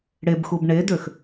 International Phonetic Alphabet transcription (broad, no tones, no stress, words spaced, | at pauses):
ɽebxub ɳedøx